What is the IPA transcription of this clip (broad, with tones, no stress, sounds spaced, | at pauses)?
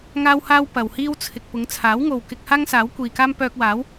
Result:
ŋ aː˥ w h aː˥ w p ɐ˨ w h iː˥ w t͡sʰ ɪ˨ k̚ p ʊ˨˧ ŋ t͡sʰ aː˨˥ w ŋ o˨ w k ɪ˧ k̚ h aː˥ ŋ s aː˨˥ w kʷ iː˨ k aː˥ m p œː˧ k̚ w aː˨˥ w